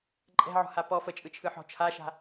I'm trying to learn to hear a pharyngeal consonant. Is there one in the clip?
yes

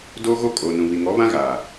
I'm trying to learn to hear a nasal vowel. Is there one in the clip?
yes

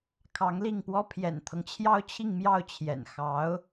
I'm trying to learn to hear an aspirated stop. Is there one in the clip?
yes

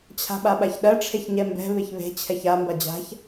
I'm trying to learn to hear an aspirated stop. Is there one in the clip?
yes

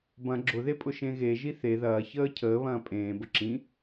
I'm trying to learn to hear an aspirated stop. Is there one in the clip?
yes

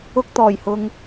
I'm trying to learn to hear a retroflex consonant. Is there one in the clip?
no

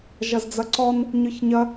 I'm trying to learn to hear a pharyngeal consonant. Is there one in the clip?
no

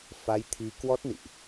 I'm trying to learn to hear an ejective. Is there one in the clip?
no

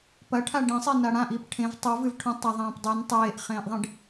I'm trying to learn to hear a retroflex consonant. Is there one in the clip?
yes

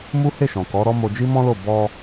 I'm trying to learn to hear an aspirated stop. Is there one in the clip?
no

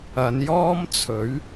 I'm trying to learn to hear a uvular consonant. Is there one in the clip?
no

